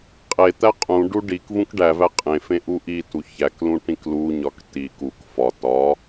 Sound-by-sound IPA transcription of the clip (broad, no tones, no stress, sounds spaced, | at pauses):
qʼ e t̪ æ qʼ ũ ɖ u ɖ i k v ũ k ɖ æ v æ qʼ ẽ f ẽ ʔ u ʔ i t u ç æ k l ũ ʈ ĩ k l u ɲ ɒ k t i k u k f ɒ t ɒ